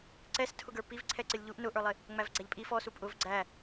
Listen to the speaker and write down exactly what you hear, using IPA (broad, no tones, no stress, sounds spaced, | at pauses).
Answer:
ǀ ɛ s tʰ ʊ ɡ ə˞ p i v ǀʰ ɛ ǀ ɪ lʲ ʎ u ʔ n ʊ ʔ ə˞ lˠ ɪ | ŋ͡m æ v ɡ͡ǀ æ ʎ pʼ i f ɔ s u pʼ ʊ v ɡ͡ǀ æ